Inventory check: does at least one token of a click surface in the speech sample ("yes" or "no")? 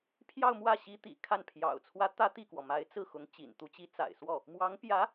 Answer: no